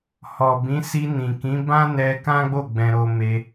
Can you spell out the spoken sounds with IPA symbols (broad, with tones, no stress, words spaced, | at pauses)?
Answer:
hɔ˨bĩ˨˦ si˧nĩ˨ kĩ˨˦bã˦nɛ˧ kã˦ɡ͡bo˦˨ ɡ͡bɛ̃˧ɾo˧me˧